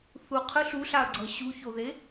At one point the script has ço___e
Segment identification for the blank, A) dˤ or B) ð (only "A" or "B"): B